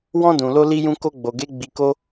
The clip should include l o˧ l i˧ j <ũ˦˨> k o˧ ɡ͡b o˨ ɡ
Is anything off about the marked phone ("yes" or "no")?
yes